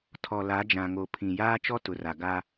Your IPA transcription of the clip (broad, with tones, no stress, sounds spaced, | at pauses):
tʰ ɔ˨ l a˨˦ d͡ʒ ã˨ ŋ o˨ pʰ ĩ˨ j aː˦ t͡ʃ ɔ˦ t ʊ˨ r a˨ ɡ a˦